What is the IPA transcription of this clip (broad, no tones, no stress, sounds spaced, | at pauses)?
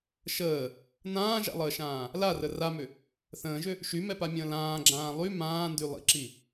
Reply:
ʃ əː | n ãː ʒ a̰ lˠ əː ʃ ãː | l a r ə r a m ʏ | θ ə̃ː ʒ ʏ | ʃ y m ɛ p a mʲ ə̃ː l ãː ɡ͡ǁ ãː lˠ y m ãː n d y lˠ ḭ ǁ i